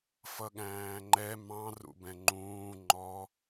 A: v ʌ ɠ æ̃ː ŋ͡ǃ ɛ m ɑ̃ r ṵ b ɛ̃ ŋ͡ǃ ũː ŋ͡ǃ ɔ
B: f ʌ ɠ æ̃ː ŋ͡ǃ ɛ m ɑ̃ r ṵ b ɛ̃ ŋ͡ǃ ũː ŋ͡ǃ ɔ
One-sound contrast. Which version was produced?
B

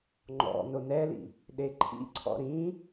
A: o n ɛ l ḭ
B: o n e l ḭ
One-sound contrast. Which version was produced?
A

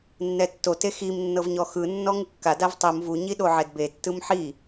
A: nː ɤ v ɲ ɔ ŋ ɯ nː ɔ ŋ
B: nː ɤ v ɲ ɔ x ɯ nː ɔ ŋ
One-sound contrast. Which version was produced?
B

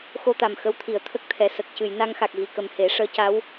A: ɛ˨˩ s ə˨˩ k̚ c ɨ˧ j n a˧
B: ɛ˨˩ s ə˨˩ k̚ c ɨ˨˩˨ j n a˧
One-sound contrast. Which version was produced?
B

